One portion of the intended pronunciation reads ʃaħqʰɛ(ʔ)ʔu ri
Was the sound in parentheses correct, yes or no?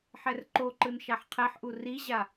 no